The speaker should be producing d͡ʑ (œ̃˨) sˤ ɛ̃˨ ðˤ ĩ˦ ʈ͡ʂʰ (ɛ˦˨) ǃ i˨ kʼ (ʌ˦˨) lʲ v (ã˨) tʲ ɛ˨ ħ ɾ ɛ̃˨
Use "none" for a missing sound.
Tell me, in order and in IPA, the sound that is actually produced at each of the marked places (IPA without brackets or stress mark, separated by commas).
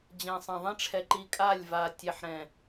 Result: ɛ̃˨, ɛ˨, a˦˨, a˨